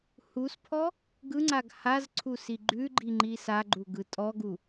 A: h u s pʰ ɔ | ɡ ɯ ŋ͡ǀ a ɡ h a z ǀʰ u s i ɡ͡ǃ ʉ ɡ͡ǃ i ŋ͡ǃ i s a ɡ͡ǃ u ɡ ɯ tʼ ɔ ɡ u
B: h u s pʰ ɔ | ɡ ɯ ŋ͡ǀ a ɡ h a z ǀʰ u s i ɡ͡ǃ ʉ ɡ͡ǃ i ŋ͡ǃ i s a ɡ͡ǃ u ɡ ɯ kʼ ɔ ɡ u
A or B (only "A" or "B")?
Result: A